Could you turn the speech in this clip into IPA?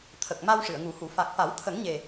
t̪ʰ ə˨˩ k̚ m a˧ w ʂ ɨ˨˩˨ ə̯ ŋ u˨˩˦ h u˨˩˦ f a˨˩ k̚ f a˨˩˦ w t̪ʰ ə˨˩˦ ŋ ɲ e˨˩

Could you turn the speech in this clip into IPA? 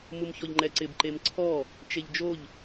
m u m ç ɔ ʎ ŋ͡ǃ ɛ ǀ ɪ b ǃ e m ǀʰ ɔ | t͡ʃ e ʎ d͡ʒ o ʎ

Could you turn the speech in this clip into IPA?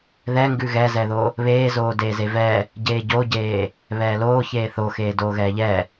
ð ɛ ŋ ɡ ʉ ɣ ɛ z ɛ ð o | β eː z oː d eː z e v ɛ | ɟ eː ɟ o ɟ eː | β ɛː l oː ç eː θ o x eː d oː ɣ ɛː ʎ ɛ

